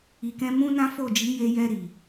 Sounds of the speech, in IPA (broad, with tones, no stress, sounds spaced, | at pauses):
i˨ k ɛ̃˧ m ũ˦ n ã˦ f o˦˨ d͡ʒ i˨˦ j e˧ j ɛ˧ ɾ i˨